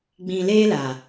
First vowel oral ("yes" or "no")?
no